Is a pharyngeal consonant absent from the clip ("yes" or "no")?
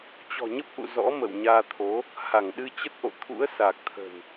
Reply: yes